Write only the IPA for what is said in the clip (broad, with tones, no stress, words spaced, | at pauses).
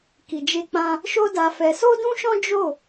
ki˨d͡ʒe˧k͡pã˧ | ʃo˦da˧fɛ˧ so˦dũ˦ʃɔ̃˦ d͡ʒo˦˨